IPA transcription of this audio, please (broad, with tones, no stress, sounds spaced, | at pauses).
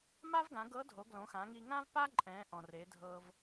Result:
m a˥ v ɡ ã˩˧ ɡ ɤ˧˥ dʱ o˩˧ ɡ l õ˩˧ x ã˩˧ ŋ i˧ ŋ ã˥ v p a˥ ǃʼ ɛ̃˩˧ ʔ ɔ̃˩ r e˩˧ dʱ ɤ˧ v